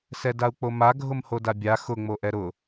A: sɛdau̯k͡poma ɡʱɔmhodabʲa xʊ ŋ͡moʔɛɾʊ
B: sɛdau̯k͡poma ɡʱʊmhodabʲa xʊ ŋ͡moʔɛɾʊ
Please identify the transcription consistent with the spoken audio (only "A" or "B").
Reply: B